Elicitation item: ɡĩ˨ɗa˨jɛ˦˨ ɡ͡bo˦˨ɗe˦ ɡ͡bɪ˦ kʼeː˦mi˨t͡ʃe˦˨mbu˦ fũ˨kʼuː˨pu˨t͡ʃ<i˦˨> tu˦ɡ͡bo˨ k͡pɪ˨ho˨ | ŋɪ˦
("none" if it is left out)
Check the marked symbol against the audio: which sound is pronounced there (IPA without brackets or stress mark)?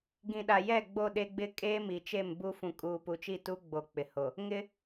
i˦˨